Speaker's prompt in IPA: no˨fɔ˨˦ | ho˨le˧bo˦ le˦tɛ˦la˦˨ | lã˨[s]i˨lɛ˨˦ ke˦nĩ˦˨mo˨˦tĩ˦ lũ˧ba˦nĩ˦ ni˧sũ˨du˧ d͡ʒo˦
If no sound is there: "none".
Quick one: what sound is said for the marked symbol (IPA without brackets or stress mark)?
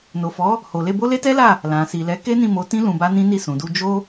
s